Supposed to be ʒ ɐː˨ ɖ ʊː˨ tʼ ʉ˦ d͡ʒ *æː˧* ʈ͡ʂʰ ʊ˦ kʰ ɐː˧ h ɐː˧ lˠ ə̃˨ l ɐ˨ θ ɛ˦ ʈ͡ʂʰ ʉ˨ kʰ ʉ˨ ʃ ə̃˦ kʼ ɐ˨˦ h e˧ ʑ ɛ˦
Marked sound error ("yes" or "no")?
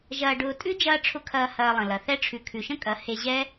yes